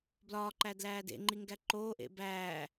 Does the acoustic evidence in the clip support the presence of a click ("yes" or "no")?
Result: yes